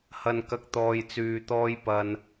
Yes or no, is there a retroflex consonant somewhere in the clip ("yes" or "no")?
no